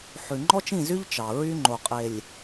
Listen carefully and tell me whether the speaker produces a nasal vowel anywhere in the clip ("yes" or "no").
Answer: yes